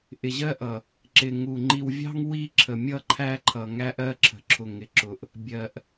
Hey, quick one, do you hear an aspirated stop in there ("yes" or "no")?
yes